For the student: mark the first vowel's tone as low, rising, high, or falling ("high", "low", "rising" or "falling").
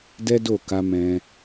high